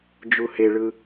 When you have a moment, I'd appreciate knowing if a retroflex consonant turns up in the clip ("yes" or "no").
yes